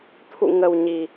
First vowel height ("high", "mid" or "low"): high